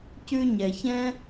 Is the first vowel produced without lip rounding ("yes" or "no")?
no